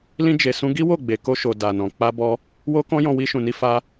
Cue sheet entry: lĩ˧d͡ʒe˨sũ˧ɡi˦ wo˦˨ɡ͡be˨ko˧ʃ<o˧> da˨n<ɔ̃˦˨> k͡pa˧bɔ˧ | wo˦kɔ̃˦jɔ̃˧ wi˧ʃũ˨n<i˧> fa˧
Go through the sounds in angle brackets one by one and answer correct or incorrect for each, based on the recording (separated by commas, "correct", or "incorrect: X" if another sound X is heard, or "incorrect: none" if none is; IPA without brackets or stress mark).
incorrect: o˨, incorrect: ɔ̃˨, correct